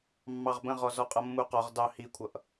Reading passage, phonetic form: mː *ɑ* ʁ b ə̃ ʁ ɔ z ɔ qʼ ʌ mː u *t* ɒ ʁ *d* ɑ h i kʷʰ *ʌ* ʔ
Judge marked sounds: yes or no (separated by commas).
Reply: yes, no, yes, yes